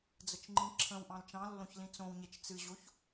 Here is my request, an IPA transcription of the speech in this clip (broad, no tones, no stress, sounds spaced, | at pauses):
d͡z ə t͡ʃ ŋ͡ǃ ĩ ǁʰ ə̃ w ʔ ɑ̃ l t͡ʃ ɑ̃ lː õ ç l ĩ t͡s õ w ɲ e t͡ʃ t͡s ɨ ʑ o ç